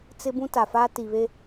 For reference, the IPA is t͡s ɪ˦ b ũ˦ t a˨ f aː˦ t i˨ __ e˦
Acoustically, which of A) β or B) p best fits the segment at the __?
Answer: A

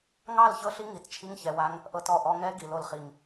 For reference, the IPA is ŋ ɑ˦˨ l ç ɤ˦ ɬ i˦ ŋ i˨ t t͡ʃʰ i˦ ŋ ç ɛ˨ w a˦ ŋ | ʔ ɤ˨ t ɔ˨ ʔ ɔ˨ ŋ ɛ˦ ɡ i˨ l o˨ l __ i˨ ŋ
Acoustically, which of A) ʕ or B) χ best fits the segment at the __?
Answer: B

